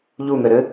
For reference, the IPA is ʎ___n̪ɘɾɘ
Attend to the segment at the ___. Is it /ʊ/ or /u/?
u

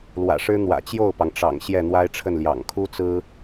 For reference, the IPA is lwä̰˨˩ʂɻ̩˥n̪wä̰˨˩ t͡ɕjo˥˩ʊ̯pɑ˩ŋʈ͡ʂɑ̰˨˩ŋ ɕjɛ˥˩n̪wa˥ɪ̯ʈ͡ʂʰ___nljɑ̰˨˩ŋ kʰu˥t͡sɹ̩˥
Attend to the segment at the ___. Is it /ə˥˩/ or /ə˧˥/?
ə˥˩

